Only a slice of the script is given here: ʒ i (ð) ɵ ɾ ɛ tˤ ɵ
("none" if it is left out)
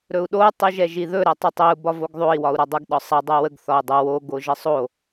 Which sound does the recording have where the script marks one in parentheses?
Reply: ð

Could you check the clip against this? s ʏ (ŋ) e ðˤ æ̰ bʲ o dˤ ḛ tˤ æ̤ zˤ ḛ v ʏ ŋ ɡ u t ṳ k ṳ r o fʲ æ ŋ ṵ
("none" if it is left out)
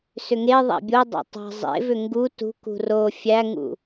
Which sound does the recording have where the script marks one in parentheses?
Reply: ŋ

